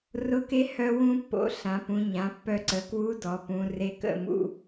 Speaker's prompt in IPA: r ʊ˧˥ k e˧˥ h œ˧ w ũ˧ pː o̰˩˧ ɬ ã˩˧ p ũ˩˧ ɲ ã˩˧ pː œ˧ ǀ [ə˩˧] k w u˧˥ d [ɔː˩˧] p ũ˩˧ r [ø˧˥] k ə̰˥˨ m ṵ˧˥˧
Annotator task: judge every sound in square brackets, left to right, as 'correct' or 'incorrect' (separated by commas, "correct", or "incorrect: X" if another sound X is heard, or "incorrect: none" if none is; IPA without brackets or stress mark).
correct, incorrect: ɔ˩˧, incorrect: e˧˥